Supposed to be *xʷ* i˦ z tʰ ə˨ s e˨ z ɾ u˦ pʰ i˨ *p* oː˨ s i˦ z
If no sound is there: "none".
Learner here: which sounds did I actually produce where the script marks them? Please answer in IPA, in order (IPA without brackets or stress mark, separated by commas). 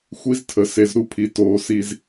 xʷ, t